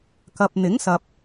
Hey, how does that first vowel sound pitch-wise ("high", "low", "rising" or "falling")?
low